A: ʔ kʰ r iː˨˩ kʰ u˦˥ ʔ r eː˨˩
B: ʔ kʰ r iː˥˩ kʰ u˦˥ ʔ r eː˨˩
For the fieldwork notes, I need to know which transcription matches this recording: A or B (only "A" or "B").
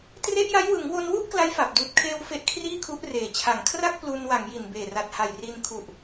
B